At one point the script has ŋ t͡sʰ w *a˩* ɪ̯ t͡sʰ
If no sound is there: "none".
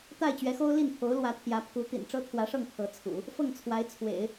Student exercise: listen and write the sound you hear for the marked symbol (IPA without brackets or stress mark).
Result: a˧˥